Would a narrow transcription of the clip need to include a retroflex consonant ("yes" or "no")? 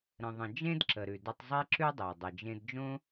no